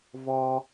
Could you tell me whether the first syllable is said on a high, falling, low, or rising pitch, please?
high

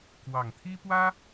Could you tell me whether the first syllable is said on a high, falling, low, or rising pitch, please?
low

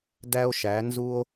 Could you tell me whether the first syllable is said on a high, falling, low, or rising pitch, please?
high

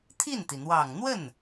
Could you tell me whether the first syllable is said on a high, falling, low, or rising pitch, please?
falling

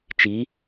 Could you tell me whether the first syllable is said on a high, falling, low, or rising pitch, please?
rising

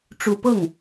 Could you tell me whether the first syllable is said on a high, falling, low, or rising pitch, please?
low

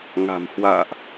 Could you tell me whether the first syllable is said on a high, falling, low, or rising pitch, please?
low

